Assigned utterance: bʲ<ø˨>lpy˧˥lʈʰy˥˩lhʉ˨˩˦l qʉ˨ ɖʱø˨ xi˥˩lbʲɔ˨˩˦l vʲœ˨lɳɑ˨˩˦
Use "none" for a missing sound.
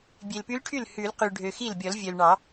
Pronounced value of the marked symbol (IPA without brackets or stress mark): e˨